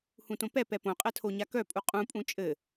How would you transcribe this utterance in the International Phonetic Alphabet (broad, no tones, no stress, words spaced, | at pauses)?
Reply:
hũtõpɛpɛ põqʼɛ tʰoɲakœpʼu qʼũpʼũ t͡ʃʼɘ